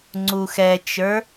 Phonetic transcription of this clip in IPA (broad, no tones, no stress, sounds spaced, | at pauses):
ŋ͡ǀ u x ɛ t͡ʃ ə˞